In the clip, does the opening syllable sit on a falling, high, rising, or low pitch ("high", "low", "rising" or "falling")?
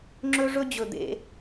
high